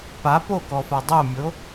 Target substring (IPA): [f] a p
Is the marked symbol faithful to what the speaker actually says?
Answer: no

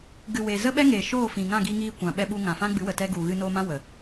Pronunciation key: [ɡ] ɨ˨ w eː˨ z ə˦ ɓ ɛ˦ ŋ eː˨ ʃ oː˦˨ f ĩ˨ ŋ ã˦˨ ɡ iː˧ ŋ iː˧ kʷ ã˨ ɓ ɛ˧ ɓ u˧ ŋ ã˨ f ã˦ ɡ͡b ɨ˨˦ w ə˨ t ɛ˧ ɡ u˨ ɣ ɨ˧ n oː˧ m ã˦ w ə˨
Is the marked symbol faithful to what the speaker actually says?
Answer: yes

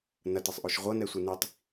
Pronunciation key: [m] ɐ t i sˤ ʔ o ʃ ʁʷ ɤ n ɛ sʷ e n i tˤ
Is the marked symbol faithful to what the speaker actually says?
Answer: no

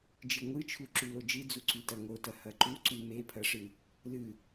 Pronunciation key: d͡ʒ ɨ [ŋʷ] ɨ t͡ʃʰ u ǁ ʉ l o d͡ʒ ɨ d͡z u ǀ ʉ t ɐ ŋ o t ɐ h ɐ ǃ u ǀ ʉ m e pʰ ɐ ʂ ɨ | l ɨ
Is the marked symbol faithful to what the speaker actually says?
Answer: yes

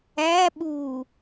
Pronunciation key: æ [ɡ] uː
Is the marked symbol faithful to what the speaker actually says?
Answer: no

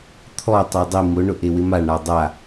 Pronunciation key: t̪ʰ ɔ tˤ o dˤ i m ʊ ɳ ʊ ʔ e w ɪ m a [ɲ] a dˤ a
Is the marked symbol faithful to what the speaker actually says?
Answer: no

